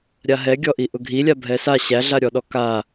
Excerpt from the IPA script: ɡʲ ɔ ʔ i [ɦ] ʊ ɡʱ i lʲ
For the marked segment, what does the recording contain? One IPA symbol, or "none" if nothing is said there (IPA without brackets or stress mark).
ʔ